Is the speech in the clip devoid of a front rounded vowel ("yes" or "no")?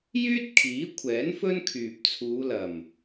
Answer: no